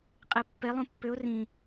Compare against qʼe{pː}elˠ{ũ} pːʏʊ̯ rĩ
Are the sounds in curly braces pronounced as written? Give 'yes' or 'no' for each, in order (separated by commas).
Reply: yes, yes